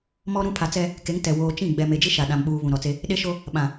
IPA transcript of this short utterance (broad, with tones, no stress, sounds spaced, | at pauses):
m ɔ˦ ɾ ũ˦ pʰ a˨ t͡s ɛ˦ | k e˨˦ ŋ t ɛ˨ w oː˨ t͡ʃ ĩ˦˨ ɡ͡b ɛ˨ m e˨ d͡ʒ i˦ ʃ a˨ ɗ ã˨ m ɓ uː˨ β ũ˨ ɾ ɔ˨ t͡s e˦ | ɗ e˦ ʃ o˦ | ɓ ã˨